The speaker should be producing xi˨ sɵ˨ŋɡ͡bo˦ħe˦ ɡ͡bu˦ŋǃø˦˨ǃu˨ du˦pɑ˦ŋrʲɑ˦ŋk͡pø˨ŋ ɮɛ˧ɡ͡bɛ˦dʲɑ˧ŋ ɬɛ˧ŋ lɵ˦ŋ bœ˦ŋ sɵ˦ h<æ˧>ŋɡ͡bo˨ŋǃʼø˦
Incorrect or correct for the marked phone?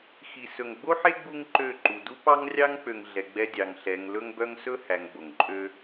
correct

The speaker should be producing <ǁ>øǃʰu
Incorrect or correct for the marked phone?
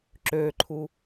correct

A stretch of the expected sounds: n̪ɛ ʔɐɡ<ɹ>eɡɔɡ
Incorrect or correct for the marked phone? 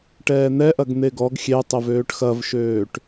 incorrect: n̪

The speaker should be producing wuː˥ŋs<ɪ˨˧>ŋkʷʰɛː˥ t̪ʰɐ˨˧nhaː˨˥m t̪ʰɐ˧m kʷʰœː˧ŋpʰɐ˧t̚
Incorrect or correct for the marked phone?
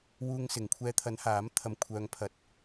correct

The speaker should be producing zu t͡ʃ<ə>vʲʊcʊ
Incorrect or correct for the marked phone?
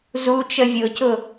correct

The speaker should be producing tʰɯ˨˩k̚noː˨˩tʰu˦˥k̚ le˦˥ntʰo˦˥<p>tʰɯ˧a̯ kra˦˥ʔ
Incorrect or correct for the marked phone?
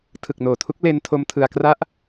incorrect: m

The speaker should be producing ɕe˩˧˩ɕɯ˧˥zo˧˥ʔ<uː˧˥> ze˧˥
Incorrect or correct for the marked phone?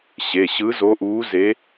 correct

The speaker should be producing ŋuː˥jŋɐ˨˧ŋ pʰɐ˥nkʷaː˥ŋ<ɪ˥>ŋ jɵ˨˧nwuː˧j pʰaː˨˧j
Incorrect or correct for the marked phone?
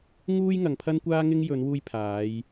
correct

